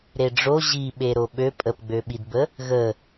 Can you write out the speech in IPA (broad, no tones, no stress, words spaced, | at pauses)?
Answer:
ɾeɖ͡ʐo ʑiɓe ɾoɓø pʼəpɡ͡bøɓidbə | ɣə